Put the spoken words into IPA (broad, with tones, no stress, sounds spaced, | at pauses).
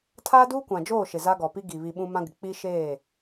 tʰ aː˦ d uː˦ kʷ ã˨ d͡ʒ oː˦˨ ʃ ɪ˨ z a˦ ɡ ɔ˨ p i˦ ɡ i˨ β i˨ ɓ ũ˦ m ã˦ ɡ ɪ˨ k͡p i˦ ʃ eː˦˨